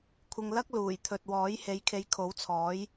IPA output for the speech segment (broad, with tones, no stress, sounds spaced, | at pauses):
kʷʰ ɪ˧ ŋ l ɐ˥ k̚ l uː˨˩ j t̪ʰ ɵ˨ t̚ w ɔː˨˥ j h e˨˥ j kʰ e˨˧ j kʰ o˨˥ w t͡sʰ ɔː˨˥ j